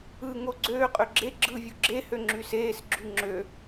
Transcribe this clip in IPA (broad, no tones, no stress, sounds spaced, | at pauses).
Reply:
ɯ ŋ o ɡ͡ǀ øː qʼ ø ɡ͡ǁ e ɡ͡ǁ ɯː vʲ u ɡ͡ǁ e h ø ŋ͡ǁ y s eː s ɡ͡ǁ y ŋ͡ǁ ø